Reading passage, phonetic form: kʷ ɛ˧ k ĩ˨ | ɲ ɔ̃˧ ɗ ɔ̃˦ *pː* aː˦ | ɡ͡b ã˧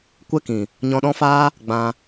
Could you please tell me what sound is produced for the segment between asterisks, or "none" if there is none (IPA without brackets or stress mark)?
f